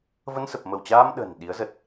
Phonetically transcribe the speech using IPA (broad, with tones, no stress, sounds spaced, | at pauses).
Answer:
v ə˧ n s ə˨˩ p̚ m ə˧˩ w t͡ɕ aː˧ m ɗ ə̤˨˩ n ɗ i˨˦ ə̯ z ə˨˩ t̚